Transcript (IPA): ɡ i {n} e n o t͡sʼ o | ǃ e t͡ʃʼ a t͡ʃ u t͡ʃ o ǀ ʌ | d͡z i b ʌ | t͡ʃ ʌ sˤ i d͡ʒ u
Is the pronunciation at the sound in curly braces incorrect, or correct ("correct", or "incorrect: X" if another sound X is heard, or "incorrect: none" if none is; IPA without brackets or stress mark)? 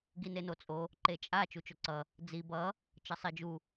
correct